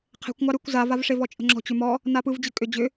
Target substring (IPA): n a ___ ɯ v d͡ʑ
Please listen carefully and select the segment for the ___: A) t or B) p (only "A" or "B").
B